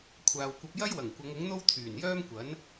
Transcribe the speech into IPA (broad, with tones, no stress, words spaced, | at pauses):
kʷʰaː˨wkʷɐ˧p̚ jɐ˥jwɐ˨˩ŋ kʷɐ˨˧ŋʊ˨˥ŋn̪o˥w t̪ʰyː˨˩njœː˥mkʷɐ˨˥n